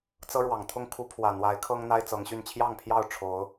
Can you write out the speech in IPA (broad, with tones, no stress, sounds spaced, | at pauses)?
t͡s ɤ˦ ɻ w ɑ˨˩ ŋ t̪ʰ ʊ˥˨ ŋ kʰ u˦ pʰ w ä˨˩ n̪ w a˨˦ ɪ̯ kʰ ɤ˦ ŋ n̪ a˦ ɪ̯ t͡s ɤ˨˦ ŋ ɕ y˥˨ n t͡ɕʰ j ɑ˥˨ ŋ pʰ j ɑ˥˨ ʊ̯ ʈ͡ʂʰ o˨˦ ʊ̯